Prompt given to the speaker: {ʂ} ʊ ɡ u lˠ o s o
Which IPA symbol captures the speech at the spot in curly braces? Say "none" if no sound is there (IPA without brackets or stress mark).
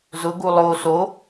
z